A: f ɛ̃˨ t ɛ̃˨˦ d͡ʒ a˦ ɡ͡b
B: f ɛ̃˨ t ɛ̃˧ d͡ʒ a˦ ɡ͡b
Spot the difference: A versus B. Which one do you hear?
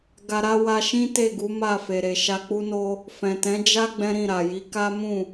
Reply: A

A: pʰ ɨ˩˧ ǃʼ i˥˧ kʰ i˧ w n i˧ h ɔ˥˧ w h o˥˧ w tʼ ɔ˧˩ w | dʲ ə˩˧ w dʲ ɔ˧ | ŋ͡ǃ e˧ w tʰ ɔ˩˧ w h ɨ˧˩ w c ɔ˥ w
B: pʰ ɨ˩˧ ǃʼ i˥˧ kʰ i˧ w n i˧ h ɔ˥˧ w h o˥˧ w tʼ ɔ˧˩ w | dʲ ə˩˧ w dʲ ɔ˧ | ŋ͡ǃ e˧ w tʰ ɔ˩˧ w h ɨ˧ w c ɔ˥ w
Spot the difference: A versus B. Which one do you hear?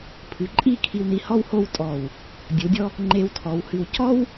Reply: B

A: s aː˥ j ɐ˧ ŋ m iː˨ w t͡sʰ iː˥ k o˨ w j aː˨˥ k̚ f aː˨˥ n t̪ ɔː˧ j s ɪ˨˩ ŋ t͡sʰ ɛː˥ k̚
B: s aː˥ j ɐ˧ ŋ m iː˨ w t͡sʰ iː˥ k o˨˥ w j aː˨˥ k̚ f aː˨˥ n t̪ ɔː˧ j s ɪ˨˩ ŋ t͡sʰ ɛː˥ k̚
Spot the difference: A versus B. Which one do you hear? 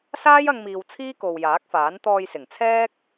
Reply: A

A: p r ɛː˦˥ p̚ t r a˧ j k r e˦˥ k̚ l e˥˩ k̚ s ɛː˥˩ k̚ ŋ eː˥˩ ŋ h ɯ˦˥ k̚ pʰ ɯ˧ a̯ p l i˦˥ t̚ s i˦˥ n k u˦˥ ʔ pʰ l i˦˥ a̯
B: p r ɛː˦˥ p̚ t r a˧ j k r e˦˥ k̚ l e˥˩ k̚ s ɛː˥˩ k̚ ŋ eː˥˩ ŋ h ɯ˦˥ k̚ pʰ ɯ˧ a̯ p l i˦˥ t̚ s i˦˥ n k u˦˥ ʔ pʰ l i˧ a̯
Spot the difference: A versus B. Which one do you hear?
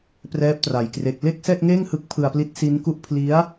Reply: A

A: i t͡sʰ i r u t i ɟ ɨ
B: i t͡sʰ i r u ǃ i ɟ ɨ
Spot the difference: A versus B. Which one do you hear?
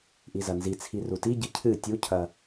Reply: A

